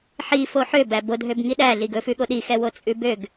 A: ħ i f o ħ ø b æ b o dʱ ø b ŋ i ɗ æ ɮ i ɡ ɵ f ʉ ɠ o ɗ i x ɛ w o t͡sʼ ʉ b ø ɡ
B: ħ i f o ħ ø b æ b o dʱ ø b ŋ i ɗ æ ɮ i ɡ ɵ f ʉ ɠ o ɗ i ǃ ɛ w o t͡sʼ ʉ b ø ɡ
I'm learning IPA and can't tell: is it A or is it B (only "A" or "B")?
A